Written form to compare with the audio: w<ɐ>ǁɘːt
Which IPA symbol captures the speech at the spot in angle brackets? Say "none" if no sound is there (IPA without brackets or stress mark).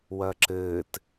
ɐ